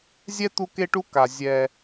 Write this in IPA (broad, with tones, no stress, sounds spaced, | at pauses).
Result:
zʲ ɛ˦ t̪ u˦ k e˦ ʈ u˦ k a˨ zʲ ɛ˦